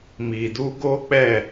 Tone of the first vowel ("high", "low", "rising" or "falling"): low